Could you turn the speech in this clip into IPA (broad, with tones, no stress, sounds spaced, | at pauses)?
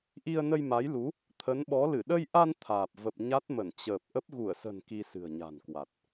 ʔ i˧ ə̯ n ə˧ j m a˨˦ j l u˨˦ | t̪ʰ ə˨˦ n ɓ ɔ˨˦ l ɨ˧˩ ɗ ə˧ j ʔ a˧ n t̪ʰ aː˨˩ p̚ v ə˨˩ p̚ ɲ a˦˥ t̚ m ə˧˩ n t͡ɕ əː˨˩ p̚ ʔ ə˦˥ p̚ ɣ u˧˩ ə̯ s ə̤˨˩ n k i˧ s ɨ̤˨˩ ə̯ ɲ a̤˨˩ n k w a˨˩ t̚